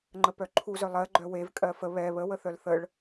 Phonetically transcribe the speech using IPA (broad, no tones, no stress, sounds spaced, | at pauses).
ŋ͡ǃ ə p œ ǃʰ u z œ lˠ ɜ ɡ͡ǃ œ w e v kʼ ɜ f ə β ɛ β ə w ə θ œ l θ ə ɭ